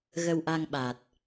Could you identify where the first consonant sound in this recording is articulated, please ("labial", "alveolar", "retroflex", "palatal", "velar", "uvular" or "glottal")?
velar